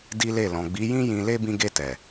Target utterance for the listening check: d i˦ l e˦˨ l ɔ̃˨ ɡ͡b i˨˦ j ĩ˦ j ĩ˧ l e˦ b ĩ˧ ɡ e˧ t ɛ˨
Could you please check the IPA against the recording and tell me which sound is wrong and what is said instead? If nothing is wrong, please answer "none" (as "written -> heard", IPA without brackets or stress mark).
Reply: none